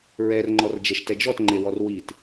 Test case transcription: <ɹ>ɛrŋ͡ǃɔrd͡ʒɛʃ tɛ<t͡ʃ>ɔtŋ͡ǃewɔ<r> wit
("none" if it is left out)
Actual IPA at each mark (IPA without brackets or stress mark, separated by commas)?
ɹ, d͡ʒ, r